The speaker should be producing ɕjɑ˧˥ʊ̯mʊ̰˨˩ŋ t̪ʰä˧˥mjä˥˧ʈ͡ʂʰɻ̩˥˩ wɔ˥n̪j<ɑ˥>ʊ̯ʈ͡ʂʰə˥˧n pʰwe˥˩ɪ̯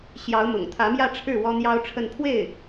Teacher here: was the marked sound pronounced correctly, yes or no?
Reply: yes